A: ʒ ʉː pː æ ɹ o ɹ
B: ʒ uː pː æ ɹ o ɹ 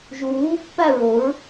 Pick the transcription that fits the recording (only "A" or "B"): B